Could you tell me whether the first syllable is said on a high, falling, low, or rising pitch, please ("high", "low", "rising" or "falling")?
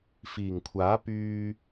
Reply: low